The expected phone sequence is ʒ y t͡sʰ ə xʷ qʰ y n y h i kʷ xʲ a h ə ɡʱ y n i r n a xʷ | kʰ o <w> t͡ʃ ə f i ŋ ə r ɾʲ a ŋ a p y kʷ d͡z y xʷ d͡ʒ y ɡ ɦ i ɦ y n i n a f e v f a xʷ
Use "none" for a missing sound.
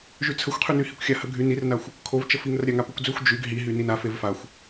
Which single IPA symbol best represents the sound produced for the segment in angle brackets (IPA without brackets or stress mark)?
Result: v